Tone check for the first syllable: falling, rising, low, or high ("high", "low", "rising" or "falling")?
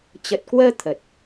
low